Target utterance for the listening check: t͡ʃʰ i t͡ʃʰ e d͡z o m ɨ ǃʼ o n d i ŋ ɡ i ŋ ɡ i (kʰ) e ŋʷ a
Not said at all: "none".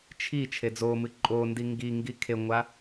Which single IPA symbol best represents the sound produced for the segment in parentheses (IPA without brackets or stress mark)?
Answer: kʰ